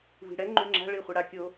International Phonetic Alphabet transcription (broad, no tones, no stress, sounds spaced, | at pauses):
v i̤ ɽ ɛ ŋ͡ǃ y ŋ͡ǁ a̤ ɭ i χʷ e ɽ a kʲ o